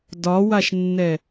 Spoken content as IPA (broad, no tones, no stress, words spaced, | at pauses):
dɒwaʃnːɛ